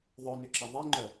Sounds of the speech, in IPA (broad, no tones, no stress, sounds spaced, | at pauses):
ðˤ œ n ʏ ǁ ɐ ðˤ i ŋ͡ǃ œ